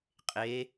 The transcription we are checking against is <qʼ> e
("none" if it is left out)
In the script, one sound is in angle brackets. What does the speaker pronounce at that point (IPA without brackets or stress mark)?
qʼ